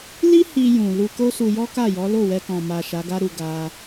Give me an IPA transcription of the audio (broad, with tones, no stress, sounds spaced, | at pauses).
l i˦ h i˧ j ũ˨ l u˧ k o˦ s u˧ j ɔ˦ k a˦˨ j ɔ˨˦ l o˦˨ w ɛ˧ k ɔ̃˨ m a˨ ʃ a˨˦ ɡ a˦ ɾ u˧ ɡ a˧